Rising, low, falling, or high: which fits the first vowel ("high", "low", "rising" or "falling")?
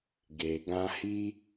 low